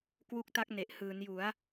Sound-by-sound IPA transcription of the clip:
k w u˦˥ k̚ t a˦˥ k̚ n e˨˩ ʔ h ɯː˩˦ n j u˩˦ a̯

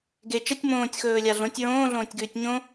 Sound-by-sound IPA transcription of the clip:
ɡ e t͡ʃ ɐ tʲ m õː tʲ x ɵː lʲ a ɮ õ tʲ ɹ õː ɮ õː tʲ ɡ ʉː tʲ ɲ õ

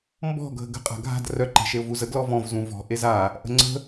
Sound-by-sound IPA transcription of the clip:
m b ɔ̤ ɡʱ ə ɡ ə̤ qʼ a̤ ɡʱ a̤ d r œ ǃ e̤ ʃ e ʊ̯ v u z ə ɡ l ɔ v ɔ̃ v z ũ v ɔ̤ ʔ e z a | ʔ ə̤ ŋ͡ǀ ə̤

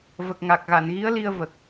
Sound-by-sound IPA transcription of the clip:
v ə˨˩ k̚ ŋ a˨˩ k̚ ɣ a˨˩˨ n ɣ i˧˥ ə̯ l i˧ ə̯ v ə˨˩ k̚

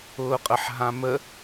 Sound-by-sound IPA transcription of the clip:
ʊː qʼ ə ħ ɦ ã m ə

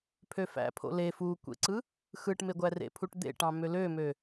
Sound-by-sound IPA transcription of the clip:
pʰ ø f æ̰ pʰ o̰ l e f u kʷ ḛ ǀ ɯ | x ɯ ʈ m e ɡʷ æ r ḛ pʰ u ʈ d̪ ḛ ʈ ɑ̃ m ø l ø m ø

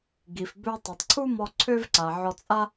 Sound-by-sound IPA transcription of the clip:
ɡ i˩ f b ø˧ tˤ ɛ˩ tˤ ǀʰ u˥ m ɔ˧ ǀʰ ø˥ v ǀ a˩ ʕ ɔ˧ t͡sʼ a˥

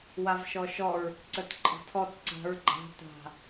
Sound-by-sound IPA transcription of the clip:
w a v ʃ ɔ ʃ ɔ ɹ | ǀ ə t ǃʼ ə̤ tʰ ɔ t ǀ a̤ ɹ ɡ͡ǃ a̤ t a̤

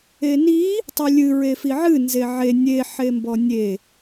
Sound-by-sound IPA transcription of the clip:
e n i | tˤ i lʲ ɨ ɹ e f i ʕ ɨ n z e ʕ e nʲ e ħ e m b ɔ nʲ e

